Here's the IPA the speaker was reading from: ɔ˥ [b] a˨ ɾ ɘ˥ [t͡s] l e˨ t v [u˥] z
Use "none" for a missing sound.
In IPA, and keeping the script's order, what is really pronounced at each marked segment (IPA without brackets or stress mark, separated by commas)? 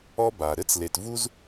b, t͡s, u˥